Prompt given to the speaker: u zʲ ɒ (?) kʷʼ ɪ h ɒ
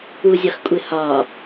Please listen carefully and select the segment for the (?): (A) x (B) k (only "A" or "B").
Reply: A